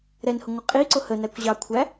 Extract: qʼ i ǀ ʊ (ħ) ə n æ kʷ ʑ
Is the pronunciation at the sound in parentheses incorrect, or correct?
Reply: incorrect: h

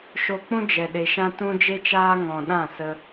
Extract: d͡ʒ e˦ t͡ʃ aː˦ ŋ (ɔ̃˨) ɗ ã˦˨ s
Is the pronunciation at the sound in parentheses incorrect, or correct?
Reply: correct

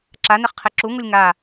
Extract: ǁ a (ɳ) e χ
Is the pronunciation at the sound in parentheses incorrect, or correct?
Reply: incorrect: n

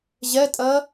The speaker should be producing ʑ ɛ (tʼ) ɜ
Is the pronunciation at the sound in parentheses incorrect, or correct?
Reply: correct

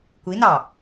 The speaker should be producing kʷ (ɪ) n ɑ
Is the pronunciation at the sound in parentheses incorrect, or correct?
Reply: incorrect: i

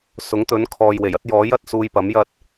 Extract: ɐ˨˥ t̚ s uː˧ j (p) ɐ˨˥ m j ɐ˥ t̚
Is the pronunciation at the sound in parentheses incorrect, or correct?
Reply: correct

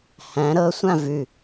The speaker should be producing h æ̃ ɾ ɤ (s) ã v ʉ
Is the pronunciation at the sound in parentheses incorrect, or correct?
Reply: incorrect: sʷ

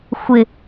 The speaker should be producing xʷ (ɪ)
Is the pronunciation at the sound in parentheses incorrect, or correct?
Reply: correct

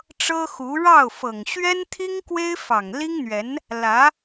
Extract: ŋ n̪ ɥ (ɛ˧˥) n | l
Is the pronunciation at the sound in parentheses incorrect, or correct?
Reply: correct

